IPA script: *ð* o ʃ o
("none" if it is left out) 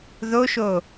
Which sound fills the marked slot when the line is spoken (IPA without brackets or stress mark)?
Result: ð